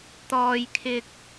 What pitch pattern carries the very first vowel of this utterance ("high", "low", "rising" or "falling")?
high